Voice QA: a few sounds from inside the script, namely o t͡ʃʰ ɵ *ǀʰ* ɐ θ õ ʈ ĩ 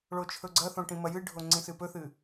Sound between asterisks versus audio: incorrect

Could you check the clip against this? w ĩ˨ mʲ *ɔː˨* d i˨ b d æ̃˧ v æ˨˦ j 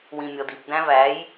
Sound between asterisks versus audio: incorrect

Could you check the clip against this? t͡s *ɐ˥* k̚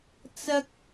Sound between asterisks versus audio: correct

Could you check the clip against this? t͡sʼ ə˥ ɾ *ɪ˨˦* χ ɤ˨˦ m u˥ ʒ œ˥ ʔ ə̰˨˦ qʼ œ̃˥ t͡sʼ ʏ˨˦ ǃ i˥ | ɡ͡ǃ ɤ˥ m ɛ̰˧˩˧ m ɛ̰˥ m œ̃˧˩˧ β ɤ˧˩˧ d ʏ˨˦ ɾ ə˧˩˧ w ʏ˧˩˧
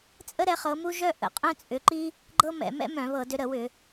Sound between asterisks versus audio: incorrect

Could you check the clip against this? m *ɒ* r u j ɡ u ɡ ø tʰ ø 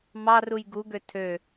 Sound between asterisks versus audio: incorrect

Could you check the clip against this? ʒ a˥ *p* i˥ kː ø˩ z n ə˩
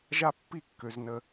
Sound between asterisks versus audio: incorrect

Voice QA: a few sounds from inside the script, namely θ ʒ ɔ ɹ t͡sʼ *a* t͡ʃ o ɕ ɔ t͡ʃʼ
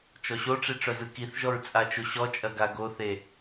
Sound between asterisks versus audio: correct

